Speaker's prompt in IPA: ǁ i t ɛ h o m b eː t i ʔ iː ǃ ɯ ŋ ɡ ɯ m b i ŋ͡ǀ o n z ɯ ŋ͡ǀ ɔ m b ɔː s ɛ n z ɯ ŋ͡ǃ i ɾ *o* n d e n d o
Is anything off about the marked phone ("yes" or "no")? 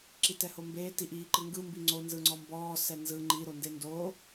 no